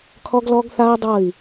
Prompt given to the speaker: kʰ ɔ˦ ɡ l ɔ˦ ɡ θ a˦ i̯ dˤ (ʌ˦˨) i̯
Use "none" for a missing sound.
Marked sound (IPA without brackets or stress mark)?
ʌ˦˨